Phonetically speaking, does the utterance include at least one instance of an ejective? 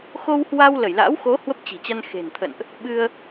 no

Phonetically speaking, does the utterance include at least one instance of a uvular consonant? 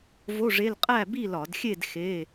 yes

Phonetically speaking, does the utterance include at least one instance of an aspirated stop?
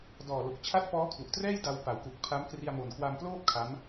yes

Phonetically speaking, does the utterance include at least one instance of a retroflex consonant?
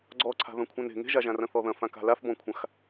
no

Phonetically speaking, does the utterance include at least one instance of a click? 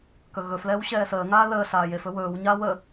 no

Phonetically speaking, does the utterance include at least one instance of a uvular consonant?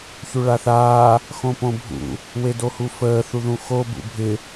no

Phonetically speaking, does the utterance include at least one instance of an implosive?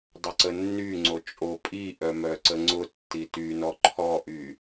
no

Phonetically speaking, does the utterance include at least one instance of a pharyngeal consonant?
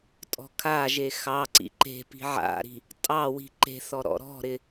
yes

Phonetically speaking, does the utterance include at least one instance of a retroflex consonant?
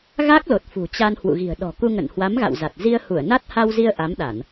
no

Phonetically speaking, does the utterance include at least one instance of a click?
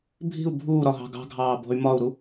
no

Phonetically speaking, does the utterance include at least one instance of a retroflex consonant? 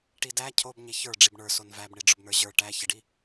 yes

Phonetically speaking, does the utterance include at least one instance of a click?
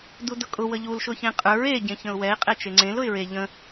yes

